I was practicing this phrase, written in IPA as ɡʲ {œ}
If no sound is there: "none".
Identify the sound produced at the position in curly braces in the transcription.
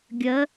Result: ə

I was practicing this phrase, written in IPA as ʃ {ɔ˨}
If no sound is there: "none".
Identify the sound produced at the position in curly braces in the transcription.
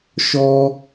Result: ɔ˦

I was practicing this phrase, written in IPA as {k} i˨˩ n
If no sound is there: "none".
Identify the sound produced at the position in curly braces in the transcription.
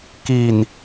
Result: k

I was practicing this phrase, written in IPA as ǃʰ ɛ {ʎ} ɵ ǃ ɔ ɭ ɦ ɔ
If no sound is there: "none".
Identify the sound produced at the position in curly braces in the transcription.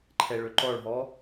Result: ɭ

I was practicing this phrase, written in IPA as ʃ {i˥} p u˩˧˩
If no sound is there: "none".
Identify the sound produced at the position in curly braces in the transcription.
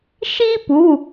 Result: i˥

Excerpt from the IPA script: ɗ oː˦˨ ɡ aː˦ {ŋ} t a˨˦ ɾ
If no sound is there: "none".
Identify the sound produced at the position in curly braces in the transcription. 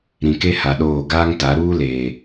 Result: ŋ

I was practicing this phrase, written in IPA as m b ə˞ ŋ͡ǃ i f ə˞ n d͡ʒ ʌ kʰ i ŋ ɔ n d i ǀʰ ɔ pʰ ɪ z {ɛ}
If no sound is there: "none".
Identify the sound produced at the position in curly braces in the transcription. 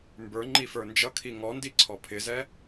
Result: ɛ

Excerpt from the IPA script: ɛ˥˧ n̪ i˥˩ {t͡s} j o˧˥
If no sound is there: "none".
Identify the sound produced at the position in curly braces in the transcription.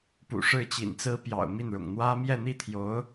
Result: t̪ʰ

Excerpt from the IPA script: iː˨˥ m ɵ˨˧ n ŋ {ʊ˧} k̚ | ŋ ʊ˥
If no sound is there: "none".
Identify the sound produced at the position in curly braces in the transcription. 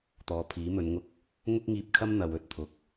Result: ʊ˥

